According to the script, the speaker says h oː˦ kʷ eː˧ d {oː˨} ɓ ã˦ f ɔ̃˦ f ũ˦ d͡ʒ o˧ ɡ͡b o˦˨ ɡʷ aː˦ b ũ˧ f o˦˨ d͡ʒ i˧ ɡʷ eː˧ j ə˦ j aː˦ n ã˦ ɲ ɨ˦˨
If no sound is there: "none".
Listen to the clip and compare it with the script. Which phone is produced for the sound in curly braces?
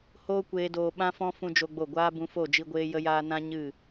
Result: oː˧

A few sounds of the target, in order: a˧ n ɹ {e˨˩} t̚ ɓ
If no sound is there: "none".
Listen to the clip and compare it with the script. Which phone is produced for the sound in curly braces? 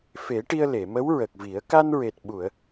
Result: e˨˩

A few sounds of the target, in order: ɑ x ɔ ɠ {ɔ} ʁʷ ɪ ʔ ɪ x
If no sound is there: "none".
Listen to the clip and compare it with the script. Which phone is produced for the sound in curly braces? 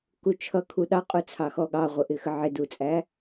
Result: ɑ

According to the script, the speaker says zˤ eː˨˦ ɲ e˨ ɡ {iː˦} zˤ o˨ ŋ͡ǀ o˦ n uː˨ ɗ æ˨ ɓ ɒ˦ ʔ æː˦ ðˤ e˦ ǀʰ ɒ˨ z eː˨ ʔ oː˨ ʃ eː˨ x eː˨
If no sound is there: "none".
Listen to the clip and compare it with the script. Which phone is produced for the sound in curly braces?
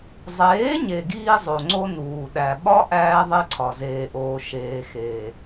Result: iː˦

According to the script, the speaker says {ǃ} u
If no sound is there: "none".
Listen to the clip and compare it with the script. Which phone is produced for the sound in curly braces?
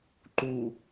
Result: ǃ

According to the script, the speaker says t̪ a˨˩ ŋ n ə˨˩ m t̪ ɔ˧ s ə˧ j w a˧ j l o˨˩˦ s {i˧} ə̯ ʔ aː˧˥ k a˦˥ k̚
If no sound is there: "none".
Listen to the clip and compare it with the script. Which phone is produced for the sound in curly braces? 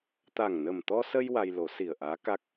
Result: i˨˩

